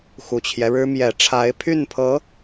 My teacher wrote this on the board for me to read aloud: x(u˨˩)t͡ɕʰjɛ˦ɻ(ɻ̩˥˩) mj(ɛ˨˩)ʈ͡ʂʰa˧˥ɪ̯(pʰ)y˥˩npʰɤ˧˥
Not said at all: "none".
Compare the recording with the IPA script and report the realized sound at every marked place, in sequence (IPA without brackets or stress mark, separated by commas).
u˨˩, ɻ̩˥, ɛ˨˩, pʰ